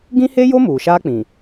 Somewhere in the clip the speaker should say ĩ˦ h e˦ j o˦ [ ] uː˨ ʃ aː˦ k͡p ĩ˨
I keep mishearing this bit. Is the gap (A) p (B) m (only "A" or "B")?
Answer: B